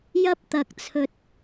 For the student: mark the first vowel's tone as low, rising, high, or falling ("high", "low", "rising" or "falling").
high